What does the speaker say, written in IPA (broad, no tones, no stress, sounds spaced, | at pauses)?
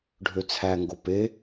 ɖʱ ø t͡sʰ æ ŋ ɡ o p e